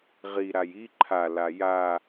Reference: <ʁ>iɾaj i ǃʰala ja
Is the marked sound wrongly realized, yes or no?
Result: no